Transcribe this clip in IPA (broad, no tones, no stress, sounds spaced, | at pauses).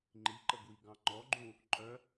ŋ͡ǃ i ǃ ə ɡ w i ɡ ɑ̃ ŋ͡ǃ ɔ ɡ͡ǃ ũ | ǃʼ œ